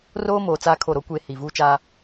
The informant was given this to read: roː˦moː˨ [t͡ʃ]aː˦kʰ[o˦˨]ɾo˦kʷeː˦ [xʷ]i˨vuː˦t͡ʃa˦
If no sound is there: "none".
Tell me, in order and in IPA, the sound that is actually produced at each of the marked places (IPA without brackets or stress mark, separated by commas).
t͡s, o˦˨, h